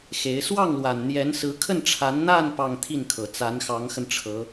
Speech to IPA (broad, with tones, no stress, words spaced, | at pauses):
xe˧˥ɪ̯ swɑ˥˩ŋlwa˨˩n n̪jɛ˧˥nsɹ̩˧˥ kʰə˥˩nʈ͡ʂʰa˧˥n n̪a˥˧n pɑ˥˧ŋ t̪ʰi˥˩nkʰɤ˨˩ t͡sa˧˥nxɑ˧˥ŋxə˧n ʈ͡ʂʰɤ˧˥